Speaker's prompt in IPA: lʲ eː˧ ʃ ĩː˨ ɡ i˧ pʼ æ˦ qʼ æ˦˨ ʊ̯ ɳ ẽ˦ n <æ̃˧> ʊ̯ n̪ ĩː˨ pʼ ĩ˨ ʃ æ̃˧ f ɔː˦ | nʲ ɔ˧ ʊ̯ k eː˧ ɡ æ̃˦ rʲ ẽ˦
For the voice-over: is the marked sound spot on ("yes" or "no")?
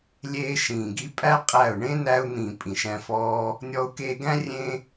no